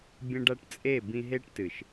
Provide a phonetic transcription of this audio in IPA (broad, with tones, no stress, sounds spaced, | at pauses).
bʲ ɐ̃˦ ɖ a˦ ʈ t͡sʼ e˦˨ b ĩ˧ ɦ e˦ ʈ t ɨ˨ ʃ